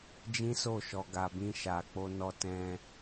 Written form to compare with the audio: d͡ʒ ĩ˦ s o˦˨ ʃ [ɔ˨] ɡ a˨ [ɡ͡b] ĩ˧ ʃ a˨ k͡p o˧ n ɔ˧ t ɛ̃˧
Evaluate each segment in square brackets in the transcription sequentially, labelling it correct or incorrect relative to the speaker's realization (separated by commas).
correct, incorrect